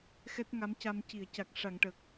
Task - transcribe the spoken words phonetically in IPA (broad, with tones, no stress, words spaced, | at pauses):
xɛ˦˥t̚ŋa˧˥mca˧m ci˨˩˨ə̯ca˨˩k̚ʂa˨˩˨ŋ ʈə˨˩k̚